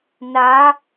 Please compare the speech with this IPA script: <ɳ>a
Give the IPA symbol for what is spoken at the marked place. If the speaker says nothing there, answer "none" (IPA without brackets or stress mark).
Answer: n